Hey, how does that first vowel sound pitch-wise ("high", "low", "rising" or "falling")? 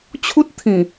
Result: high